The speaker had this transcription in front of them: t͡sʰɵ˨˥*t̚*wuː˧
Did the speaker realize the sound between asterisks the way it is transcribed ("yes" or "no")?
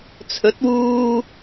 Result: yes